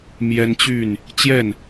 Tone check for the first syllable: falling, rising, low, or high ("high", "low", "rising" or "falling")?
high